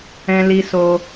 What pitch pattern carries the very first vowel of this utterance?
high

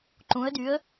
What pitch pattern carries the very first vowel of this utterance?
rising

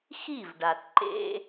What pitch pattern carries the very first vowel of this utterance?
falling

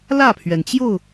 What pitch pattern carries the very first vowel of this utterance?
falling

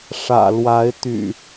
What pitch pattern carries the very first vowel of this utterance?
low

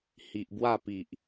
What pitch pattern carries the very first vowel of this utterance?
low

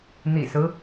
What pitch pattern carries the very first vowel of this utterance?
low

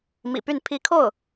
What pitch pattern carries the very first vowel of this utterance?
low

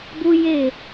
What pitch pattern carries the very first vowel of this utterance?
high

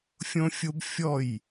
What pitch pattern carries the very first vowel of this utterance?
high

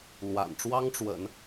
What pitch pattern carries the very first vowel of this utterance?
low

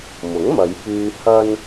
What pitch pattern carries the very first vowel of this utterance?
rising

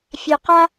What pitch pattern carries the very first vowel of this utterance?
low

